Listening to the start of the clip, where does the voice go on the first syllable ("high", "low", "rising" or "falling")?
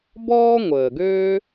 high